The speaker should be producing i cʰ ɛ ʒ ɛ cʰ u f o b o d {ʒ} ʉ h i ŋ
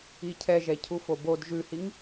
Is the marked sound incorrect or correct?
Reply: correct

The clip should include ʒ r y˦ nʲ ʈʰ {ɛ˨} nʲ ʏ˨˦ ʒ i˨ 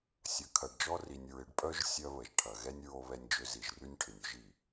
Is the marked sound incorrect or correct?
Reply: incorrect: ɪ˨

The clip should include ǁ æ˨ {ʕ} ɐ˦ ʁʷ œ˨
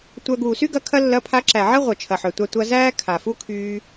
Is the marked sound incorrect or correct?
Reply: correct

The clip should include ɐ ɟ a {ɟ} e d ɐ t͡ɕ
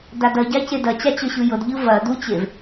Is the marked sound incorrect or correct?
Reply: incorrect: c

